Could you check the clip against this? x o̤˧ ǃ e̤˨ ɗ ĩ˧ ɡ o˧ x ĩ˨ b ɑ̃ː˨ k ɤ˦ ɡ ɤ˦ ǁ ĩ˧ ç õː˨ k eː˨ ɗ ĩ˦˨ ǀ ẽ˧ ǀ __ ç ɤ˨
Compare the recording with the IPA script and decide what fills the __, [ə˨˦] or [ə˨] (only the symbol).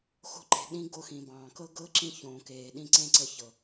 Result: ə˨˦